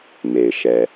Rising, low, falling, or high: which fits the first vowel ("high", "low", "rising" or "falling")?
low